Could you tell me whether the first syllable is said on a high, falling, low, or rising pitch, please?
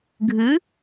rising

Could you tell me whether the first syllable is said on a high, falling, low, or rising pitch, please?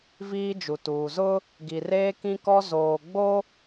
high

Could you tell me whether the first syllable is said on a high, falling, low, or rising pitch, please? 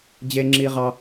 high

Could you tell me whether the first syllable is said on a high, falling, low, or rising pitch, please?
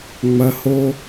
low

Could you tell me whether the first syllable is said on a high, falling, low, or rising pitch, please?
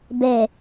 low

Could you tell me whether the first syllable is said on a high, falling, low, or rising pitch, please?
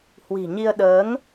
low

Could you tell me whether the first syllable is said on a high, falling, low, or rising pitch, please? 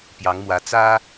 rising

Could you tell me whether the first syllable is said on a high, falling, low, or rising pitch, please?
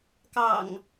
low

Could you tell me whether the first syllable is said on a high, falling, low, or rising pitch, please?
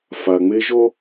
low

